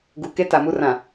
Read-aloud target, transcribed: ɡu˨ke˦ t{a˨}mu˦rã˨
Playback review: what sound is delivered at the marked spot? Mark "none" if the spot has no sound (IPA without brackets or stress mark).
a˨